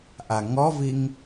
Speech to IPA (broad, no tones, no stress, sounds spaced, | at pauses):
ʔ a ŋ ɔ v i ŋ